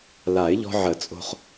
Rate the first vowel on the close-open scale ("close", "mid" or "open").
open